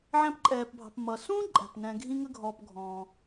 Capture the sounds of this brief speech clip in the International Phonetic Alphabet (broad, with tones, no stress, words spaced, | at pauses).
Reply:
ʕæ̃˦pǃʼɛː˩pbʱɑ̤˨p mʌ˩sũː˥ǃʼæ̤˩p nɛ̃˨ɡʱĩ˦ ŋə˥ɡʱɔː˨pɡʱɔ̃ː˩